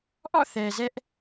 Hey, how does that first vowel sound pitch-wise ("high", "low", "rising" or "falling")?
falling